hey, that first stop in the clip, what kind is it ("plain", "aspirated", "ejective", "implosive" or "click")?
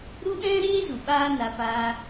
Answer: implosive